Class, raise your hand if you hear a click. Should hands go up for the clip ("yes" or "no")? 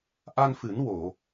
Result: no